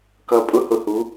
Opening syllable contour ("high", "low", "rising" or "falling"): low